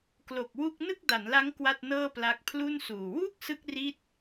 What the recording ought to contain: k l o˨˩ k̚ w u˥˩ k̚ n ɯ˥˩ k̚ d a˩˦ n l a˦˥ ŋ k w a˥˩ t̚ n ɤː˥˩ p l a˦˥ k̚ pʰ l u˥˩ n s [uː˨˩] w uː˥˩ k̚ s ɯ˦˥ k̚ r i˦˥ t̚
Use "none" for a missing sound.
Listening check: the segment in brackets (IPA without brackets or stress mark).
uː˨˩